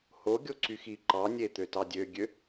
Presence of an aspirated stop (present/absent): absent